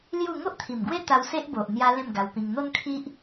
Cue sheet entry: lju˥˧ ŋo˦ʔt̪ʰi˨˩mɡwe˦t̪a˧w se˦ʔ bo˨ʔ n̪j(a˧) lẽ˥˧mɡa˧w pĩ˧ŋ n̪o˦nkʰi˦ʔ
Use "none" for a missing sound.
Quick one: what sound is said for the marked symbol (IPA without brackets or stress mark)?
a˧